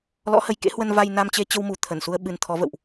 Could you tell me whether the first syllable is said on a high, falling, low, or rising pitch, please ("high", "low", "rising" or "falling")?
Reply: rising